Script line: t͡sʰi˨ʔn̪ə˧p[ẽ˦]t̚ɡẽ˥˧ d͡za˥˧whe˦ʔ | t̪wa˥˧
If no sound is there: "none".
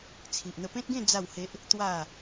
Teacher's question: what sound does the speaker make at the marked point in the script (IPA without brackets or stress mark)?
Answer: ẽ˦